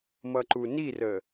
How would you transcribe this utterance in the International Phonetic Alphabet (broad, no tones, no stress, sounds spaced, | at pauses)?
m ʌ ǃ u n i r ə